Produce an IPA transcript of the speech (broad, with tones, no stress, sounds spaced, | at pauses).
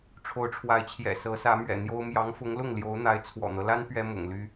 ʈ͡ʂʰ o˧˥ ʊ̯ ʈ͡ʂʰ w a˧˥ ɪ̯ t͡ɕʰ j ɛ̰˨˩ s ɤ˧˥ s ä˧˥ m ɥ ɛ̰˨˩ n̪ j o˥ ʊ̯ m j ɑ˧˥ ŋ f ʊ˧˥ ŋ l ʊ˥˩ ŋ l j o˧˥ ʊ̯ n̪ a˧˥ ɪ̯ t͡sʰ w ɔ̰˨˩ n̪ ɤ˦ l a˥ n p ɥ ɛ˥ m ʊ̰˨˩ ŋ l y˥